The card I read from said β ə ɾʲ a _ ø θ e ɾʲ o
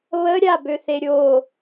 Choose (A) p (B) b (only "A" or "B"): B